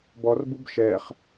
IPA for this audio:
b ɔ r b u b ʃ ɛ χ

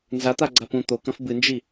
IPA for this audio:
n z a t̪ a ɡ͡ǀ a p ũ t̪ o k ɐ̃ f b ɨ n d͡ʒ i

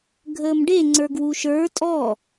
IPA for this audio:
ɡʱ əː m ɖ e ŋ͡ǀ ə˞ ɡ w u ʃ ə˞ tʼ ɔ

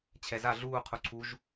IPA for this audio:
t͡ɕʰ ɛ z a ɮ uː qʰ u ǀʰ u ʒ

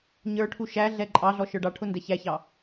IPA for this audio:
ɲ ə˞ ʈʰ u ʃ æ ɮ ɛ ǃʼ ɑ ɮ ɔ ʃ ə˞ ɖ ɑ ʈʰ ʊ n d ɛ ç æ ç ɑ

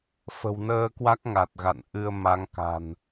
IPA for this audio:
f ə̤˨˩ w n əː˧ k w a˦˥ k̚ ŋ a˨˩ t̚ ɣ a̰˧˨ n ʔ ɨ˧ ə̯ m a˨˦ ŋ k a̤˨˩ n

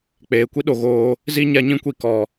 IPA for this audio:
k͡p eː˨ kʷ i˦ ɗ o˨ ɣ oː˧ | z i˦ ɲ a˦ ɲ ĩ˦ kʷ i˧ k ɔ˨

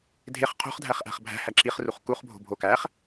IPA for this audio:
dʱ e χ qʰ o̤ χ dʱ æ χ ʔ æ̤ χ bʱ æ̤ h æ ǁ i χ r u χ k u χ bʱ o̤ bʱ o k æ χ

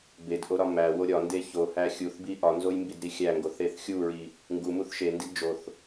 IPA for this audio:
b e d ʔ o ɾ ɒ m æ w o ɾʲ ɒ n d e ç o h æ xʲ u θ b i ʔ ɒ n z o j m b i d ɾ i xʲ æ ŋ ɡ o θ e θ xʲ u ɹ i | ŋ ɡ u m u θ ʃ e n d i d d͡ʒ o θ

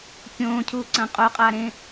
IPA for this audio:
kʲ õː cʰ uː ǀ ɐ̃ qʼ o qʼ aː ɾ ẽ

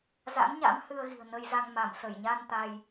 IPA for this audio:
z a̰˧˥ n ɲ a̰˧˥ m h ɨ˧ ə̯ ɣ i̤˨˩ ə̯ n ə˧ j z a˧ ŋ m a˧˩ m s ə˧˩ j ɲ a˧ n t̪ a˧ j

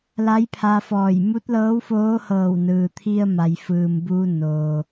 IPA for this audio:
l a˧˥ j pʰ a˧ f ɔː˧˩ j m u˧˥ t̚ l ɤː˧˥ w f oː˧˥ h ɤː˧˩ w n ɯː˩ t̪ʰ i˧ ə̯ m a˩ j f ɯː˩ m b uː˧ n oː˩

